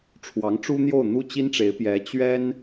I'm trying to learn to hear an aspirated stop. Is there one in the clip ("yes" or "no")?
yes